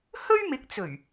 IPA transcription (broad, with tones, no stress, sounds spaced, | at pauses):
h ɵ˥ ɥ m ɪ˨˥ k̚ t͡s ɵ˨˩ ɥ